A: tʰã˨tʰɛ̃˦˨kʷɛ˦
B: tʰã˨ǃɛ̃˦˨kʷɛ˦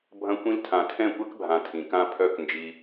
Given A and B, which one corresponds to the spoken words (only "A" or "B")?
A